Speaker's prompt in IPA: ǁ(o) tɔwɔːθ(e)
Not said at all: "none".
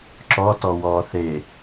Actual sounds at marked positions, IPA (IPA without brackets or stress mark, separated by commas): ɔ, e